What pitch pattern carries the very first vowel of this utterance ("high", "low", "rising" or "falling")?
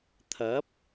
rising